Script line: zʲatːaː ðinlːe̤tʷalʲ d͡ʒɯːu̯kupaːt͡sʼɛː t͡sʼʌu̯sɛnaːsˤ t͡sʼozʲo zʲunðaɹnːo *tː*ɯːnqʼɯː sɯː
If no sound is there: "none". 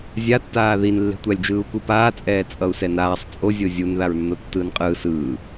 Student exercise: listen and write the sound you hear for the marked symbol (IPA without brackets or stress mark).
tː